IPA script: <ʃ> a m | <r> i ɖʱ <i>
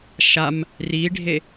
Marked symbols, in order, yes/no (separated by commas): yes, yes, no